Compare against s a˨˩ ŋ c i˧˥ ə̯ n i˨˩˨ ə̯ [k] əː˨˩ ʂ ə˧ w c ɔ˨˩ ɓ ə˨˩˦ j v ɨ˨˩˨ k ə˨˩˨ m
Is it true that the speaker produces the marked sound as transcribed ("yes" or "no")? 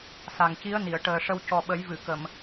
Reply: no